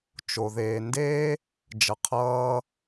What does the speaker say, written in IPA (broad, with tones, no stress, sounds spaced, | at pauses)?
t͡ʃ o˩ ð eː˩ n d eː˥ | d͡ʒ ʌ˩ qʰ ʌː˧